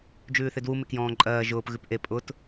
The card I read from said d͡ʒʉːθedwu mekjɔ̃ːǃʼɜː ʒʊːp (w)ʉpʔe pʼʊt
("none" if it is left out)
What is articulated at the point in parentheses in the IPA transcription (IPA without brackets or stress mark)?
ɣ